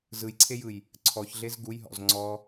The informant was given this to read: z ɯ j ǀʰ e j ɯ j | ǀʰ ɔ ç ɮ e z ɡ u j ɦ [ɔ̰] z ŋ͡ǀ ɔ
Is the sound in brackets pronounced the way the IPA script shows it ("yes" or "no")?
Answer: yes